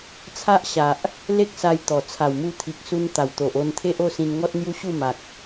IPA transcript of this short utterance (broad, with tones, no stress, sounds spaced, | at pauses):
t͡sʰ a˦ ʔ ɕ a˨ ʔ | l e˦ k̚ s a˧ j t̪ ɔ˨˩ t͡sʰ a˨˩ w m u˧ t̪ʰ i˨ k̚ s u˧ n t̪ a˨˩ w t̪ o˨ ʔ o˧ n t̪ʰ e˦ ʔ o˥˧ s ĩ˧ n ŋ ɔ˦ t̚ n̪ j u˦ ɕ u˥˧ m a˨ k̚